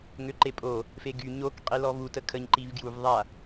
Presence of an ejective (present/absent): present